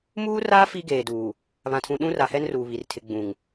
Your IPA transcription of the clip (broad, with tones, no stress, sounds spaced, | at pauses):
m uː˦ r aː˦ f i˦ ɡ eː˨ d uː˨ | β ã˨ tʰ ũ˨ ɗ ũ˦ r a˨ h ɛ˦ n r uː˨ β i˨ r tʰ ɪ˨ ɡ͡b ũ˨ ŋ